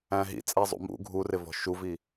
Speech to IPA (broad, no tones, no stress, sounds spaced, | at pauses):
æ̃ ɦ ḭ t͡sʼ æ zˤ ṵ m ṵ ɡʱ u r ɪ v ɔ̤ ʃ u v i